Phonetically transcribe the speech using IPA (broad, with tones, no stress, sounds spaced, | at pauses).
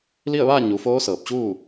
l i˥˨ ə̯ ʋ aː˥˨ ɲ u˩˧ f oː˧˥ s ɤː˧˩ p̚ t͡ɕ uː˥˨